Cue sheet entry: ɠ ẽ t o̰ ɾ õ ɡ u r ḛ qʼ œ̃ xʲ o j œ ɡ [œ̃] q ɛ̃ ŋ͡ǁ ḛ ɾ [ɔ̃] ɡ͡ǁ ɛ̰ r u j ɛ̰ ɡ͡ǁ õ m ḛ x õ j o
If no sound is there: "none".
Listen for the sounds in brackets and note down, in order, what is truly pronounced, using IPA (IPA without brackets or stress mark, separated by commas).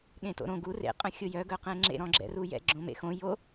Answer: œ, ɔ̃